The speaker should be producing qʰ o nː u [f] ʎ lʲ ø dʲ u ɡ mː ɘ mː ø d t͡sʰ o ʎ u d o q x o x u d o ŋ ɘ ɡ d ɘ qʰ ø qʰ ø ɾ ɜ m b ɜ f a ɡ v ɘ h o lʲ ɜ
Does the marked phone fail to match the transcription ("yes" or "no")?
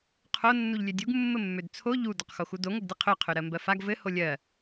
yes